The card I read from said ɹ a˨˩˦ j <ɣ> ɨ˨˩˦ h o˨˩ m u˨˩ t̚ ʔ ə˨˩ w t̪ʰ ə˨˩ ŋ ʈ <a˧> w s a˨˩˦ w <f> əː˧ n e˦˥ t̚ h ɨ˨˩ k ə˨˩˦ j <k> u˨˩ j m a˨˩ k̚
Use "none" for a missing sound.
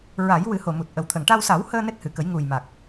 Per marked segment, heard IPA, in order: w, a˧, h, ŋ

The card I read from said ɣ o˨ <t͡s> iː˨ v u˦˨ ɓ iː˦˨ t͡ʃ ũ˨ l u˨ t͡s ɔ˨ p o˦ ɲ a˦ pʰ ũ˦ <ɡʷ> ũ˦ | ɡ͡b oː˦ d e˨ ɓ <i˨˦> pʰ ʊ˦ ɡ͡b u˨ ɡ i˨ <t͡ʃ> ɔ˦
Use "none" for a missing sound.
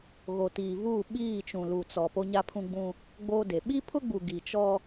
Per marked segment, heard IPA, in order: t, ɡ͡b, i˦, t͡ʃ

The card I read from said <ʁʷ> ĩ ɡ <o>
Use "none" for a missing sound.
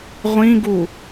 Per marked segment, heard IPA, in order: ʁʷ, u

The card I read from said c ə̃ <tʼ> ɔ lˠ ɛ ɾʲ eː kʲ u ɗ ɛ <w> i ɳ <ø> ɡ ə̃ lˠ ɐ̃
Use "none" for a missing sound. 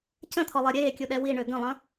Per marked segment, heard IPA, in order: t̪ʰ, w, ø

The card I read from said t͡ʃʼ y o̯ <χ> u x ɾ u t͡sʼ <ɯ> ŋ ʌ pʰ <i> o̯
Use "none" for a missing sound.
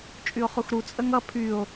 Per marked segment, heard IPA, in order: χ, ə, y

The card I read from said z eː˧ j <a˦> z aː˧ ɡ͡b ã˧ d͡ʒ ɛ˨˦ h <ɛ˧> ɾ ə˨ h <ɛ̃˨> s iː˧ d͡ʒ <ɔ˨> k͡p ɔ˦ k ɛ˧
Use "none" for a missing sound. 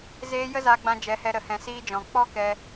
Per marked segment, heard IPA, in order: ə˦, ɛ˧, ɛ̃˨, ɔ̃˨

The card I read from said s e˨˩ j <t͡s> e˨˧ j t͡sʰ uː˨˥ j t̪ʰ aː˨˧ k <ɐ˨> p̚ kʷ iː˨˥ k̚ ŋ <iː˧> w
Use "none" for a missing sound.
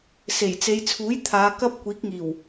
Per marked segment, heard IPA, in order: t͡s, ɐ˧, iː˨˩

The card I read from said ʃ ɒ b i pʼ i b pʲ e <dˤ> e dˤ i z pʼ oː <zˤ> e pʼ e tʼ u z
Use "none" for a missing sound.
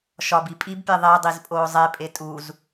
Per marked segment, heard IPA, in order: ðˤ, zˤ

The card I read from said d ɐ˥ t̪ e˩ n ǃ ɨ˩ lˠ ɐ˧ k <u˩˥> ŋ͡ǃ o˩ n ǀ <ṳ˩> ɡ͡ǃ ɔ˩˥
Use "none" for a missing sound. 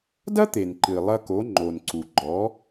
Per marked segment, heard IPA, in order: o˩˥, u˩

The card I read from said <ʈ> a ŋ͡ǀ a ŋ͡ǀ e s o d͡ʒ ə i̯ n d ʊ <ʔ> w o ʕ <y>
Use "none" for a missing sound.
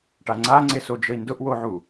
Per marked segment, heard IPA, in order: ʈ, ʔ, u

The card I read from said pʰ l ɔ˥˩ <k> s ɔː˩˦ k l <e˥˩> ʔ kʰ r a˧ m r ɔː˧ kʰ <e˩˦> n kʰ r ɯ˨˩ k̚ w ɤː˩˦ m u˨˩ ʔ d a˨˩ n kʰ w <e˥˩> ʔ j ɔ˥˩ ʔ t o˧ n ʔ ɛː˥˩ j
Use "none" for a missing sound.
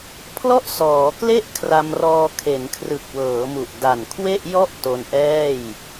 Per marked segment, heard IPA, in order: ʔ, e˥˩, e˩˦, e˥˩

